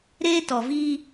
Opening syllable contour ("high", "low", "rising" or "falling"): high